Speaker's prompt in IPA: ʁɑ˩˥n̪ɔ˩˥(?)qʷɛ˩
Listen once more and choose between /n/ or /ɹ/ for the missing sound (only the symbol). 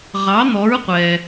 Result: ɹ